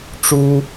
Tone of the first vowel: high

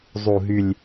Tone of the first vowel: low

